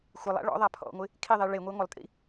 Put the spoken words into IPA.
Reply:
xʷ ɪ lˠ a̰ ɭ ɔ̰ ðˤ a pʰ ɔ̰ ŋʷ ɪ | kʰ i ðˤ i ɭ e ŋʷ e ŋʷ ɪ lˠ tʼ ḭ

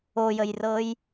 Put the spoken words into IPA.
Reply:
o j ə j r ɤ j

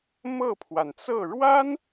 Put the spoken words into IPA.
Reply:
m ɤ˥˩ pʰ w a˩ n t͡s ɤ˥˩ ɻ w a˥ n

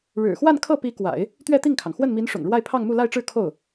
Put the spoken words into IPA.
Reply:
ɻ ɻ̩˨˩ x w a˥˧ n kʰ ɤ˥˩ p i˧˥ k w a̰˨˩˦ ɪ̯ | t̪ ɥ ɛ˥˧ t̪ i˥˩ ŋ kʰ ɑ˩ ŋ x w ə˥˩ n m i˧˥ n ʂ ʊ̰˨˩ ŋ ɻ w a˥˧ ɪ̯ pʰ ɑ˥˧ ŋ m u˥˧ l a˥˧ ɪ̯ ʈ͡ʂ ɻ̩˥˧ kʰ o˥˩ ʊ̯

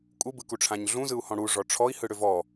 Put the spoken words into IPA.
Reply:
kʼ u b ɯ k u ʈ͡ʂʰ ã ɲ ɮ ũ z ɯ u̯ h ɔ̃ ɽ u ʐ ɔ ʈ͡ʂʰ ɔ i̯ h ɯ ɽ ʏ v ɔ

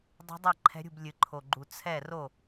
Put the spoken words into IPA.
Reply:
dˤ ṳ˧˥ dˤ ɐ˥˩ ǃʰ ɛ̤˧˥ ɾʲ ṳ˥˩ b lʲ ɨ˨˩ ǃʰ o˨˩ ɡ͡ǃ u˨˩ t͡sʰ ɛ˥˩ r o˥˩

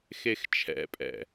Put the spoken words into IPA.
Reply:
x e x t͡ʃʰ ɛ̰ pʼ ɛ̰

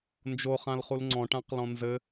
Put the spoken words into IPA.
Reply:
n d͡ʒ o χ ã l χ u l ŋ͡ǀ ɔ̃ ʈ ã q l ɔ̃ n z ɘ

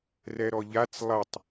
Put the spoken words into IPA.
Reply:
r ɛ ɾ ɔ ʎ a t͡s lˠ ɐ tˤ

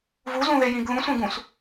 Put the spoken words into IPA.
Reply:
v u z ũ ð e j ĩ ɡ ð ũ sʷ ẽ ɡ ũ s

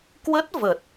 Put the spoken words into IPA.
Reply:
k w ə˦˥ t̚ v ə˨˩ t̚

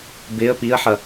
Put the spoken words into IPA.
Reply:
b ɪ ə̯ p i ə̯ ħ ɐ

